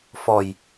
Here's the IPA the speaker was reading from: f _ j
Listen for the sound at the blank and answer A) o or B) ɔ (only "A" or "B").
B